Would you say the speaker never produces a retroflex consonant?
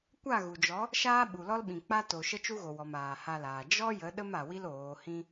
yes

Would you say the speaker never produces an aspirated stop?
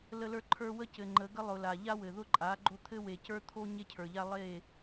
no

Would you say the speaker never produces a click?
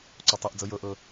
no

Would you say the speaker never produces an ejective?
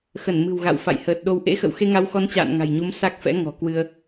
yes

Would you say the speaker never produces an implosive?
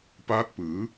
yes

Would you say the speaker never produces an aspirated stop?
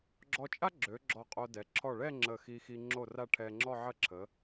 no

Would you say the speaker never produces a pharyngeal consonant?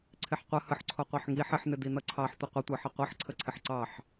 no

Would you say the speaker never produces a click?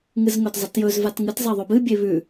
yes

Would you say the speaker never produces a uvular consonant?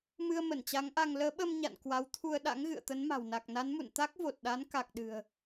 yes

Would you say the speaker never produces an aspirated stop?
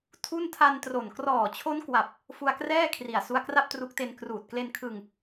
no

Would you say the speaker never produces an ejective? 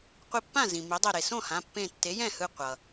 yes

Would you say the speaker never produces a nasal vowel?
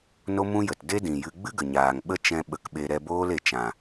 no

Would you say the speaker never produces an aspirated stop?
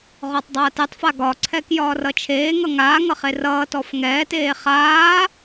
no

